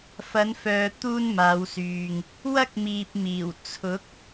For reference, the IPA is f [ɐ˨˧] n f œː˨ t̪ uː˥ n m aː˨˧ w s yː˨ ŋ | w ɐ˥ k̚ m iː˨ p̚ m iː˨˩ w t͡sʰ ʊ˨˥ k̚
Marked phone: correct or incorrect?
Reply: correct